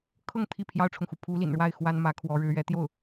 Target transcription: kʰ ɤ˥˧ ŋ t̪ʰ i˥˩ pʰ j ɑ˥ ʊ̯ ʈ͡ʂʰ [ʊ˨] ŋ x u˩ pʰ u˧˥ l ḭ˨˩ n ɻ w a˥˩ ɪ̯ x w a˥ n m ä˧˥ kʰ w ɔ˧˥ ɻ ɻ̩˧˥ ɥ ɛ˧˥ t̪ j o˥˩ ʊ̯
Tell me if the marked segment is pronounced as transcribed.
yes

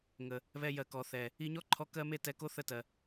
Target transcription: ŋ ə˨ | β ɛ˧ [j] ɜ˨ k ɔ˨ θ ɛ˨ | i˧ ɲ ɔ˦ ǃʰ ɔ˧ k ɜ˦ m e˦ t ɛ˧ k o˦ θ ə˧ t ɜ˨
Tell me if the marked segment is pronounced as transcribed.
yes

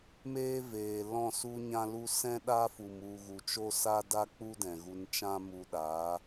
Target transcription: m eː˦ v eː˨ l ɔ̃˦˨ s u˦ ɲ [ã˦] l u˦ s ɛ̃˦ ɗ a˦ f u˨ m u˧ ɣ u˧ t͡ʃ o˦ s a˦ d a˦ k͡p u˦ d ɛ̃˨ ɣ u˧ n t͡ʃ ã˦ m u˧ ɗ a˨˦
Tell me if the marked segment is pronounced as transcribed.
yes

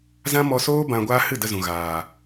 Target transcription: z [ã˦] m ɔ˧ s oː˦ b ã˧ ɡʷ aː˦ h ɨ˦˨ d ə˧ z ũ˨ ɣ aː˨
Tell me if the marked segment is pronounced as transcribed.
yes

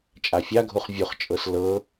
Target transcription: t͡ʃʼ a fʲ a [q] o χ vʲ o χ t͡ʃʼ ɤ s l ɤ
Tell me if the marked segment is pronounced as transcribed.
no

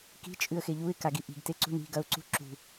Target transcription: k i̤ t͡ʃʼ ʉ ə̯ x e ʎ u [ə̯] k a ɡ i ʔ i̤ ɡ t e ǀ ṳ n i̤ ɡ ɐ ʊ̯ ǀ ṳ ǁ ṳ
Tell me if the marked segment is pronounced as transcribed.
no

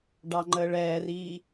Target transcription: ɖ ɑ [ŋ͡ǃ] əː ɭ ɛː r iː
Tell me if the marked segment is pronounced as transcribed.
yes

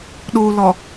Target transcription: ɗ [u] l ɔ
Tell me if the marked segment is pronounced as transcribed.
yes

